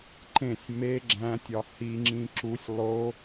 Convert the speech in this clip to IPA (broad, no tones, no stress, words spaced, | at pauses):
ǃẽsʲ me ɡ͡ǁæ̃tʲɒ hiŋ͡ǁĩ ǁusʲ lˠo